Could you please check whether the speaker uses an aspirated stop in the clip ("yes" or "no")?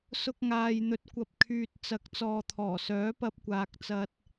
yes